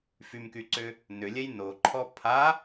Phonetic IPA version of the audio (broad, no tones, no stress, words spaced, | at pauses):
fymkyǀʏ | nʏlʲɛj noǃʰɔ pʰa